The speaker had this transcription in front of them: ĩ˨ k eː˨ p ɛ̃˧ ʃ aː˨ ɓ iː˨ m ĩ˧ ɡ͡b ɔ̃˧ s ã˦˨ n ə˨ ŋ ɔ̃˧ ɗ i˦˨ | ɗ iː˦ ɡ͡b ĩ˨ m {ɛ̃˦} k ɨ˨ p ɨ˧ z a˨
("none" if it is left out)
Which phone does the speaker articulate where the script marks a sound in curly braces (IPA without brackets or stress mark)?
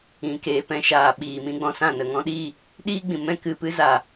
ɛ̃˦